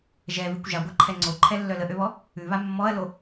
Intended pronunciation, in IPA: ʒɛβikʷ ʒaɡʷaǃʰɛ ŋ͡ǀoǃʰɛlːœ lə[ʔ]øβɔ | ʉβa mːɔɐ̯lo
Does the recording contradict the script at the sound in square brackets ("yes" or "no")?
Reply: no